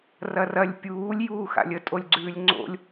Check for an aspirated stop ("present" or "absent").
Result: absent